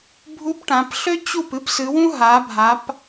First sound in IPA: bʱ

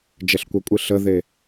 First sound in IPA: d͡ʒ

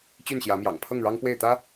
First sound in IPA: t͡ɕ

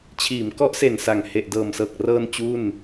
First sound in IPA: t͡ɕʰ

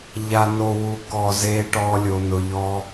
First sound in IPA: ʎ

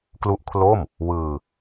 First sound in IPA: k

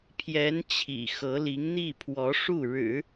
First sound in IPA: pʰ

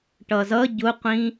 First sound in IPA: ʈ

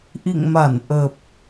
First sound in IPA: ʔ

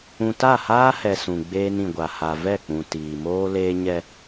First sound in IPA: ũ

